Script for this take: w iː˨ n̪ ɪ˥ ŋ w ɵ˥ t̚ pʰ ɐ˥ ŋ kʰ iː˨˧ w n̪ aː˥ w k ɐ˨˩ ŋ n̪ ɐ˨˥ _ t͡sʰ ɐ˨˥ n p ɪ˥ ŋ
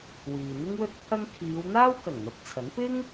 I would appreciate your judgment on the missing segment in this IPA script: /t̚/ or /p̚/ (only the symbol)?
p̚